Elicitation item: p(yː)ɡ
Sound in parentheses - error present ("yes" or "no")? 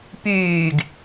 no